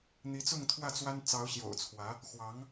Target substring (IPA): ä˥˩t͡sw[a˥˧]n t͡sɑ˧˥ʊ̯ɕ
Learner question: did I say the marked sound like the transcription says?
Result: no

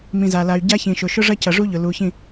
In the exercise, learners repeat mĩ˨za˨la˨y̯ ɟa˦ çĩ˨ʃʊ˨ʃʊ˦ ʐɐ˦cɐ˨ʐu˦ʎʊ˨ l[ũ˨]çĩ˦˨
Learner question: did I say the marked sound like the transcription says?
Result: no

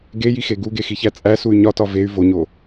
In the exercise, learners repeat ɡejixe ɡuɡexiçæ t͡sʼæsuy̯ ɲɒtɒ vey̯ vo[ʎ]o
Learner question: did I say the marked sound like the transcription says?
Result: no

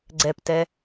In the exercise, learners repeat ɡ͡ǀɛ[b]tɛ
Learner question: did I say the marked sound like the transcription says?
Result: no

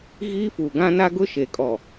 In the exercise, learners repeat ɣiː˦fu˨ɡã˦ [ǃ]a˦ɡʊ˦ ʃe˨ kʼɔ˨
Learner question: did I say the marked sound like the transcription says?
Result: no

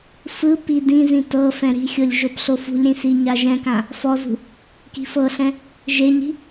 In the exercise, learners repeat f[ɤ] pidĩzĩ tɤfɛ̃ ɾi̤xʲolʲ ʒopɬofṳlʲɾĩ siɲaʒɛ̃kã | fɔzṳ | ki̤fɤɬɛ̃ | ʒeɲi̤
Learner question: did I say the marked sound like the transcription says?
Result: no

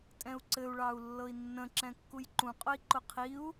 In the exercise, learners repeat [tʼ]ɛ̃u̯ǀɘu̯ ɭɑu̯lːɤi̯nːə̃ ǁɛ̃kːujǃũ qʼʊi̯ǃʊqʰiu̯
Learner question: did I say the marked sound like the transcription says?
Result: yes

